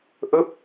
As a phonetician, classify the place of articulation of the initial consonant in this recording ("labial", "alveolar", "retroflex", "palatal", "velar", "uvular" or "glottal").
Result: glottal